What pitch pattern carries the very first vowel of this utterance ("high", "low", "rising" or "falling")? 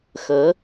rising